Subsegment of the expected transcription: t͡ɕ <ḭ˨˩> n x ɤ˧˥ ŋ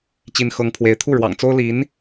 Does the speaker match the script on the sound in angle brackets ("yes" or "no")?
no